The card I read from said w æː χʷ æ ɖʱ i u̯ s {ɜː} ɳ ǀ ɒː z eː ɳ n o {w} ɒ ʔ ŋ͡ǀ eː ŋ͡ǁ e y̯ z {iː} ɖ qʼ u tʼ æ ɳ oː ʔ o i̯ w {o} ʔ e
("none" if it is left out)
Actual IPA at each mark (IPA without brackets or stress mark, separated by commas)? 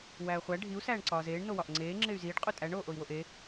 æː, w, iː, o